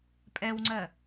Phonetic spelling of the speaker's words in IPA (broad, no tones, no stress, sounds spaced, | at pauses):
pʼ ɛ w ŋ͡ǀ ɜ